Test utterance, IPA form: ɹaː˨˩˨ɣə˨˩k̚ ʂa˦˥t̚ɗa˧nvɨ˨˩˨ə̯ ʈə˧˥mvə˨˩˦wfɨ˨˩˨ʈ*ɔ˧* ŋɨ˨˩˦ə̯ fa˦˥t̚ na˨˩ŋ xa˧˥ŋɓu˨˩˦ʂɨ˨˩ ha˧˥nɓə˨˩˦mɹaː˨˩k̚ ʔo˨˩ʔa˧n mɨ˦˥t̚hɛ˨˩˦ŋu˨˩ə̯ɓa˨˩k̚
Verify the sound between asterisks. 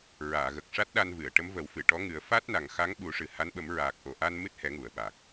incorrect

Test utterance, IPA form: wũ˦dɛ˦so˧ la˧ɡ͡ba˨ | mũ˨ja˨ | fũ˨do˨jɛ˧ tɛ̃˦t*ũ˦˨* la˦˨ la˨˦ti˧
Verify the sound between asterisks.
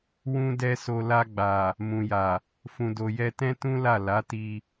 incorrect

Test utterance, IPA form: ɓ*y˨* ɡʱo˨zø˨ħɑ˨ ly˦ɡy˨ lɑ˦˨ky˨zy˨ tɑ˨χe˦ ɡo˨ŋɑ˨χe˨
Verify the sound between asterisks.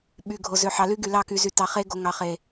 correct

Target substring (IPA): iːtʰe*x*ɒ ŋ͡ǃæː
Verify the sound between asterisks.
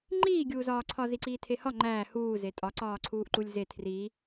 incorrect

